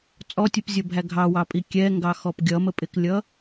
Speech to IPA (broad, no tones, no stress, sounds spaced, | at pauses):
t͡sʼ ɔ tʲ u p zʲ ʌ bʱ æ ɡʱ ɑ w ɑ pʼ i kʲ ɛ ŋ ɡ ɑ x ɔ p ɡʲ ʌ m ə pʼ ɪ k lʲ ʌ